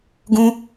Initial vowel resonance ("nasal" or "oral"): nasal